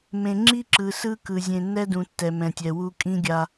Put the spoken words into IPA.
mẽ˨ ŋ͡ǁi˦ǁɯ˨ sɯ˦kɯ˨ zʲẽ˨nːɛ˦dũ˨ tːɛ˨mɛ̃˨tʲɛ˨wu˦ kʼĩ˦ɡʲa˦

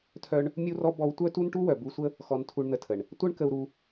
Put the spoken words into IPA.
tʰœ˦ɳ | mʲu˦rɔ˦ bɔ˦w tʷœ˦tu˦nʈu˦ wœ˨bu˧sʷə˦ | xɔ˧ntʰu˧ɳn̪ə˧tʰə˨ɳ | tʷœ˦ɳkə˧u̯ɾu˧

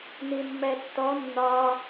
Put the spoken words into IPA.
nimːɛtːɔ nːɒ

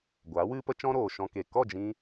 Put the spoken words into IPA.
ɡʷaː˨˦wɨ˦pə˦ t͡ʃɔ̃˦ɾoː˨ʃɔ̃˧ ke˨ kɔ˦˨d͡ʒĩ˧

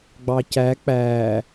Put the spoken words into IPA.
ɡ͡bɑcæ k͡pæ

